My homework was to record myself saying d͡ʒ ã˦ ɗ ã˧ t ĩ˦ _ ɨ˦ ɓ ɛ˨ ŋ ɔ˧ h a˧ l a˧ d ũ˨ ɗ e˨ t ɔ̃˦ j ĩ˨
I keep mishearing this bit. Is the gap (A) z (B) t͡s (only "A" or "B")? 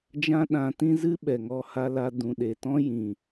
A